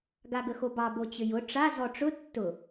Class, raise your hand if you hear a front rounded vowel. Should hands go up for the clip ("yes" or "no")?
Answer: yes